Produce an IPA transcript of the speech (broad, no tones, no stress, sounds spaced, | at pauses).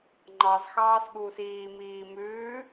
ŋ͡ǃ ɑ z x ɑː s ɠ uː s iː m iː m ʉː